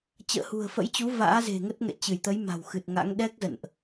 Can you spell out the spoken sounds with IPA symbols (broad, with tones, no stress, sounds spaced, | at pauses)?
t͡ɕ ə̰ː˧˨ h ṳ˨˩ ə̯ f ə̰˧˥ j t͡ɕ u˨˦ v a̰ː˧˥ z e̤˨˩ ŋ ə˦˥ t̚ ŋ ɛ̰˧˨ t͡ɕ ɨ˧˩ j t̪ ə˨˦ j m a̤˨˩ w x ɨ˨˩ t̚ ŋ a̰˧˥ ŋ ɗ ɛ˦˥ k̚ z ə̰˧˨ n ʔ